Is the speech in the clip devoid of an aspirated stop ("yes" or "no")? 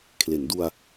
no